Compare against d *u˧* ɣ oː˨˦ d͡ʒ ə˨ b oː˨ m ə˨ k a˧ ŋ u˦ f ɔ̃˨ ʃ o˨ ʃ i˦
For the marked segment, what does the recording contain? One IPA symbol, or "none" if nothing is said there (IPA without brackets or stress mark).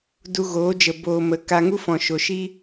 u˧